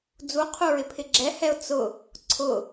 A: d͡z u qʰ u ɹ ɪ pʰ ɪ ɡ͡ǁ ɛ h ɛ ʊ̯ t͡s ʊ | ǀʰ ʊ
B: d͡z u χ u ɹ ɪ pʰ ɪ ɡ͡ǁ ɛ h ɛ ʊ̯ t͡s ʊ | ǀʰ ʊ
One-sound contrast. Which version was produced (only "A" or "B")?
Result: A